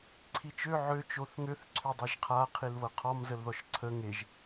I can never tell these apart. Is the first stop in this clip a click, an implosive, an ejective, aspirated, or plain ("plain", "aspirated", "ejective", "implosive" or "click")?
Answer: click